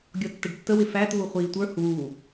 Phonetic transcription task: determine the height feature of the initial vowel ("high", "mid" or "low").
mid